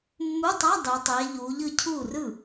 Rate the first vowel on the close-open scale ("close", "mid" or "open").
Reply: close